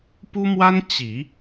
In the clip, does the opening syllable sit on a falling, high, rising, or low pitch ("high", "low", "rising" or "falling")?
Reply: high